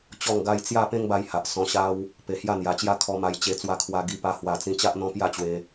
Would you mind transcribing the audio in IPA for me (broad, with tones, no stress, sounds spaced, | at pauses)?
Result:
t͡ɕ ɔ˥˧ ŋ ɡ a˦ j t͡s j a˥˧ p ẽ˦ ŋ b a˧ j h a˨ ʔ s ɔ̃˧ ɕ a˦ w | p e˨˩ h j a˥˧ n̪ j a˨˩ t͡ɕ j a˦ kʰ ɔ˧ m a˧ j t͡ɕ e˧ t͡s w a˧ kʰ w a˧ ɡ i˧ p a˧ h w a˨˩ t͡s ĩ˧ t͡ɕ a˦ ʔ n̪ ɔ̃˦ p j a˥˧ t͡ɕ w e˧